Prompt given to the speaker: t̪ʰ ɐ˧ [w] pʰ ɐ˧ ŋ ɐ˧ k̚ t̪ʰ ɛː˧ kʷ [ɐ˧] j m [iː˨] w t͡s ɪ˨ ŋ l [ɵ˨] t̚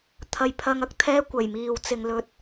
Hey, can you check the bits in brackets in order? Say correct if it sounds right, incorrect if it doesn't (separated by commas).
incorrect, incorrect, correct, correct